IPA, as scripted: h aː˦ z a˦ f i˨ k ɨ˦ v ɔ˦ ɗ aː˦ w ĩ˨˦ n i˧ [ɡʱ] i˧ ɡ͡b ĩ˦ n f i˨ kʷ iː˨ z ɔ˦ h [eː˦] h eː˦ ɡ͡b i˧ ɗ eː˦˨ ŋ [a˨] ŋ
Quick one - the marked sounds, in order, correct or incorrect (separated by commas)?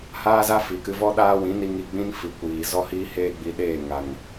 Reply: incorrect, incorrect, correct